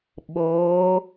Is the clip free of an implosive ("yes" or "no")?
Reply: no